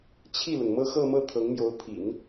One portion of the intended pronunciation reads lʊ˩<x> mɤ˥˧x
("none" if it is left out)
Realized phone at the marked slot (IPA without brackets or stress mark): ŋ